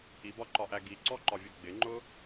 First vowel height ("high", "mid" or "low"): high